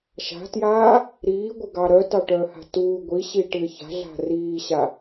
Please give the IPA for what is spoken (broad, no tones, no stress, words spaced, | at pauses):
ʃa̤tjaː | ɾiːɡʷɪɡɑ ɾœtɑʈœːha̤ tuː ɡʷiɕiʈɪː ça̤ɮa̤ riːɕa